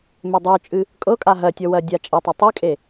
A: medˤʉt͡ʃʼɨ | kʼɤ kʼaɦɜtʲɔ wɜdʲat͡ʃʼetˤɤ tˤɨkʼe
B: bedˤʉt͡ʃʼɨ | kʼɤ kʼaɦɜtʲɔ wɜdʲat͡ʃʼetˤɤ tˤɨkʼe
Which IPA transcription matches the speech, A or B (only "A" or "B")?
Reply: A